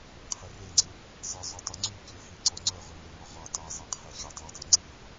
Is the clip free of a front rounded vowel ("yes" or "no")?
no